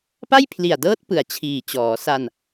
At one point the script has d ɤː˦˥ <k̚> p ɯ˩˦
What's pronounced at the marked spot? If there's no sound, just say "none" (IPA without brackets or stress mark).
t̚